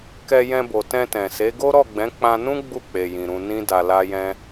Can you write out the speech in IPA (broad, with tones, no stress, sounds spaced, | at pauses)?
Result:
k ɛ˧ j ɛ̃˧ b o˨ t ɛ̃˧ t ɛ̃˨ s e˨˦ ɡ o˦ ɾ ɔ˦˨ ɡ͡b ɛ̃˨˦ k͡p ã˧ n ũ˦ ɡ͡b u˦˨ k͡p e˨ j ĩ˨ ɾ ũ˧ n ĩ˦ d a˧ l a˦ j ɛ̃˦